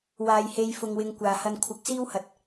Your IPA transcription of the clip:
waː˨jhe˨˧jfʊ˨ŋ wɪ˧ŋkʷaː˨hɐ˧n kʷʰɪ˨˥k̚siː˥whɐ˨˥t̚

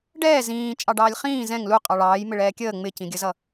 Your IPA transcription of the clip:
ɖɛː zĩː t͡ʃʼɑɖɑːlʲχĩː zɛ̃ŋ lu qʼɑɭɑːj mɪɭɛːkʲəː ŋ͡mɪcĩɡʲəzʌ

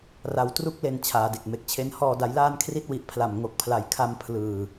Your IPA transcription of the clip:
ra˩˦w tru˦˥k̚le˨˩n t͡ɕʰaː˩˦de˨˩k̚me˨˩k̚t͡ɕʰe˦˥n hɔː˨˩da˩˦jlaː˧n kʰri˦˥t̚wi˨˩ʔpʰla˨˩m ŋo˨˩k̚pʰla˨˩jkʰa˧m pʰlɯː˨˩

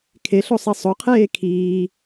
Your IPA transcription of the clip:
kʰeɬo sˤisˤoqʰeː kʰiː

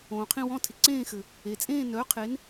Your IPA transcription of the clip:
õː˩qʰĩ˥˧wɔ̃˧˥˧tʰɪ˩ ǀẽː˥˧xɘ˩ | e˩t͡sʼẽː˥˧ nœː˩˥qʰe˩˥n

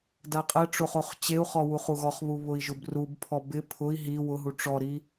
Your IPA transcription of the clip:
daqʼɛʈ͡ʂoχ oχt͡ɕeu̯χɔ wuχuɣɔχβu βʊi̯ʒʊbrubpʰɔ bɪ pʰʊi̯ ɦi wʊɦu ʈ͡ʂɔɾi

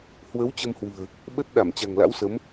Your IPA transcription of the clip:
hwə˨˦w t͡ɕə˧mhwɨ̤˨˩ə̯ | ɓə˦˥t̚ ɗa˧˩mt͡ɕa̤˨˩ŋla̰˧˥wsə˨˦m

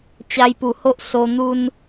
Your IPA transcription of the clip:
t͡ɕa˧jpu˨˩ ho˦ʔso˧ n̪u˧n

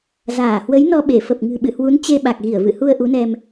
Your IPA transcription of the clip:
zaː˧˩hwə˨˦jnɔ˧ɓe˧˩ fə˨˩p̚ŋɨ̤˨˩ɓɨ̰˧˨hwu˨˦n t͡ɕe˧ɓa˨˩k̚ɣi˧˩ə̯ vɨ̰˧˨hu˧ə̯ ʔu˨˦nɛ˧m

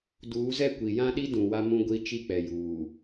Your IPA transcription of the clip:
duː˨˦zɛ˦ kʷi˨ jã˦ɗi˦ dũ˨wa˦mũ˦ɡʷi˦ t͡ʃi˦k͡pɛ˨juː˨

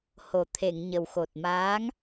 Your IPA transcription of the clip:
ho˨˩t̪ʰe˨˩˨ŋɲə˨˩wxo˨˩t̚ maː˧˥ŋ

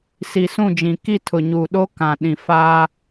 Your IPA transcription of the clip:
si˨sũ˦˨d͡ʒĩ˨ ki˦˨tʰʊ˨ɲuː˨ɗo˦ kã˨ ɗĩ˨ faː˦

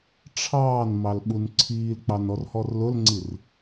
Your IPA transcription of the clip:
ʈ͡ʂʰɑːn mɑlɓunǀʰiːlk͡pɑn ɔrhɔrlʊlŋ͡ǀir

